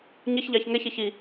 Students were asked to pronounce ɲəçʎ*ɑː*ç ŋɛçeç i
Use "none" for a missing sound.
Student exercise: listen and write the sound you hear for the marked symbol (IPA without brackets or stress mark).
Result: ɑ